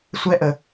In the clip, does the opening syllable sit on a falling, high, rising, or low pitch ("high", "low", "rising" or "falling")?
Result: high